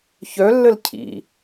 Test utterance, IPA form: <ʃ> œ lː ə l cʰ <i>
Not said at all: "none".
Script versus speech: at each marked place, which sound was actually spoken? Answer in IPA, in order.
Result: ç, ḭ

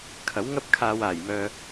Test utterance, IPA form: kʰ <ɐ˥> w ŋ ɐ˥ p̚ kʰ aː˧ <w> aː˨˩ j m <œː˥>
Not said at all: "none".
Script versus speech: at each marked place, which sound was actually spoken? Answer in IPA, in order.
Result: ɐ˨˥, w, œː˨

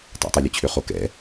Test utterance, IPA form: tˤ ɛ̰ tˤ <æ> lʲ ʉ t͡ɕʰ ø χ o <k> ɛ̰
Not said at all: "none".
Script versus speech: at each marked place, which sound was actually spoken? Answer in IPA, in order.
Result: ɛ, k

